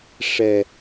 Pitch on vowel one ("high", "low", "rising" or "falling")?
low